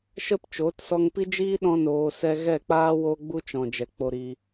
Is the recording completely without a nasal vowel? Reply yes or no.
no